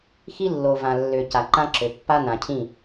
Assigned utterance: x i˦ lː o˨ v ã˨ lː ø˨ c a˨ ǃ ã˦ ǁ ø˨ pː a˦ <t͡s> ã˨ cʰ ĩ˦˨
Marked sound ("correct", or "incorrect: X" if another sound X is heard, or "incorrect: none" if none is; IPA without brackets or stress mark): incorrect: n